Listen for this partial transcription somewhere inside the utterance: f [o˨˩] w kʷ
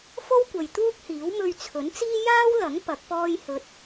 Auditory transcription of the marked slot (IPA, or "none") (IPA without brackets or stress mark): o˥